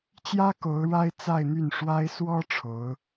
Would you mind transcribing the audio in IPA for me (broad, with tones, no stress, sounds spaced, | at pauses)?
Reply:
t͡ɕ j ä˥ k o˧˥ ʊ̯ ɻ a˥ ɪ̯ t͡s a˥˧ ɪ̯ n̪ y˥˩ n ʂ w a˥ ɪ̯ s w ɔ˥ ʈ͡ʂʰ o˧˥ ʊ̯